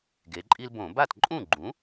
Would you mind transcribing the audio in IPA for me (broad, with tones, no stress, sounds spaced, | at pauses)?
ɡ e˩˧ ǃʼ i˦ l b õ˧˩˧ b a˥˩ t ǃʼ ũ˥˩ ɡ͡ǃ ũ˩˥